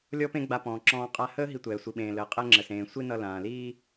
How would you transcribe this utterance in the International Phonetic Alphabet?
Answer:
lʲ ɔ˥ p ẽ˥ ɡ͡b a˧ p ɔ̃ː˩ ǁ ɔ̃ː˧ qʼ a˧ h əː˥ ɦ i˧ tʷ ɛː˩ sʷ i˩ ɓ ẽː˩ l əː˩ qʼ ɛ˧ ŋ͡ǁ ə˩ s ẽː˩ sʷ i˥ n ʌ˧ l ãː˩ l iː˥

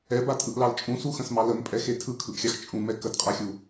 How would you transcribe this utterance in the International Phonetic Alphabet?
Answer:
ɛ b a tʼ ɯ ʔ l ɑ l t͡ʃʼ ũ s u x ə̃ s m ɑ l ə m pʼ ɛ x e tʰ ɯ kʰ ɯ ʔ xʲ ɑ x t͡ʃʼ ũ m ɛ k ə d qʼ a xʲ u

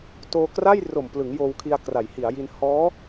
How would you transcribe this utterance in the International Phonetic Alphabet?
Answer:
t oː˧ k r a˥˩ j r o˨˩ m p l ɯ˩˦ ŋ j oː˧ w kʰ i˧ a̯ k r a˩˦ j h i˩˦ a̯ j i˧ n h ɔː˦˥

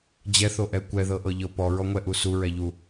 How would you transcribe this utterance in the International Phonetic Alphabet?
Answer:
d͡ʑ ɛ θ o ʔ ɛ kʷ ɛ ð ɤ ʔ ɤ ʎ ɤ p ɔ ɹ ɔ ŋʷ ɛ ʔ u s u ɹ ɛ ʎ u

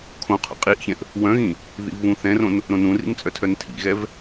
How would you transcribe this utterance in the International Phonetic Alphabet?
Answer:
kʰ õ qʰ o̰ qʼ i ʔ ç ɛ̃ ʔ | w œ̃ ɣ ĩ | ð ḭ v β ũ θ ɛ̃ r õ n | ɾ õ n ũ r ḭ n t͡sʼ œ tʰ œ n tʰ ḭ ɣ ɛ v

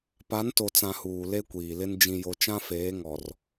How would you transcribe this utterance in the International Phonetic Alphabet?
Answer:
p a˨˦ n t o˨ t͡s ã˨ h uː˨ l e˦ kʷ iː˨ l ɪ˦ n d͡ʒ ĩ˨ j o˨ t͡ʃ ã˦ f eː˨˦ ŋ ɔ˨ r

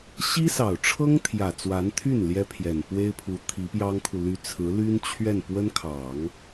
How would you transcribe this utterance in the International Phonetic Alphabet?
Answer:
ɕ i˥ s ɑ˨˩ ʊ̯ ʈ͡ʂʰ ɤ˥ ŋ t̪ʰ j ä˨˩ t͡s w a˧˥ n t̪ʰ y˥˩ n l j ɛ˥ pʰ j ɛ˨˩ n p w e˥ ɪ̯ pʰ u˧˥ t̪ʰ i˧˥ p j ɑ˥ ŋ kʰ u˨ l y˧˥ t͡sʰ ɹ̩˧˥ l y˥ n t͡ɕʰ ɥ ɛ˥˩ n p w ə˥ n kʰ ɑ˨˩˦ ŋ

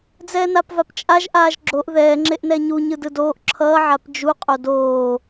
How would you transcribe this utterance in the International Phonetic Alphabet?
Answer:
d͡z ɛː n a p v a p t͡ʃʼ a ʒ ʔ aː ʒ ɡ͡ǁ o ʔ ð ɛː ŋ͡ǁ e ʔ n ɛ ɲ u ɲ ɯ d ɯ d oː ʔ ǁʰ ʌː ʕ a p d͡ʒ u qʼ o d oː

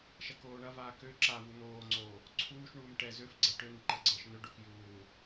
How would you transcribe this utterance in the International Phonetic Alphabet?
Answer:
ʃ ɐ k oː ɳ ɐ v aː k ø ǁ a v u n̪ oː ŋ͡ǀ oː | ǀʰ uː ʃ ɳ uː m ʈ ɛ z ø f ɡ͡ǀ ɐ ʈ ø n̪ i ǃ ɐ ɡ͡ǀ əː ʃ n̪ ø ɖ o k j uː

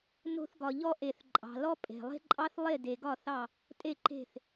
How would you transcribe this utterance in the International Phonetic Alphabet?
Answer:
n o̤˨ θ ɡ ɒ˨ ʎ ɔ˦ ʔ e˨ θ ǃʼ ɑ̤˨ l ɔ˦ pʼ e̤˨ lˠ e̤˦ ǃʼ ɑ˦ θ lˠ e˦˨ d e˨ ɡ ɒ˦˨ θ ɑ˦˨ | tʼ e˦˨ ǃ e̤˦˨ θ

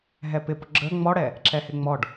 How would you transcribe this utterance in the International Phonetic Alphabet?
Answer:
ɦ ɛ p ɪ p ʊ ɡ͡ǁ ə ŋ͡m ɔ ɽ ɛ | ǁ ɛ h ɪ ŋ͡m ɔ ɖ

